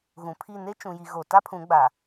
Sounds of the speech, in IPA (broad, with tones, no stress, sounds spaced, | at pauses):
ɣ ũ˨ pʰ i˦˨ n e˦ t͡ʃ ũ˨ j i˨ ɣ o˨ t a˦ pʰ ũ˨˦ ɡ͡b a˨